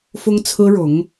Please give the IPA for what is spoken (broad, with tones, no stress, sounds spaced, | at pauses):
f ʊ˥ ŋ t͡sʰ ɹ̩˥ ɻ ʊ˧˥ ŋ